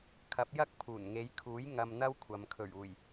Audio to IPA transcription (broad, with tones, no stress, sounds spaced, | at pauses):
kʰ ɐ˨˥ p̚ j ɐ˥ k̚ pʰ uː˨˩ n ŋ e˨˧ j kʰ uː˨˥ j ŋ ɐ˧ m n̪ ɐ˥ w kʷʰ ɐ˨ m kʰ ɵ˨˩ ɥ uː˨˩ j